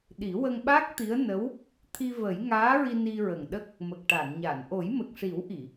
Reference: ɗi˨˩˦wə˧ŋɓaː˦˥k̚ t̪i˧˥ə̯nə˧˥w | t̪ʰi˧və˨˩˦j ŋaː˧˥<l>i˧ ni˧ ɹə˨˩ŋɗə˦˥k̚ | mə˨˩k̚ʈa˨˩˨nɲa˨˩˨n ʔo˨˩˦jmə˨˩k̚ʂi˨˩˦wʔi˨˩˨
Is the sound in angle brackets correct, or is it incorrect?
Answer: incorrect